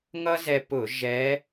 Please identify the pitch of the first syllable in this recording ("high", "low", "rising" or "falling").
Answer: high